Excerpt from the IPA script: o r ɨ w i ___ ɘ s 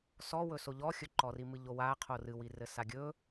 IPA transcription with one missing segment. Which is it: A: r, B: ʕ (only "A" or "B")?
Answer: A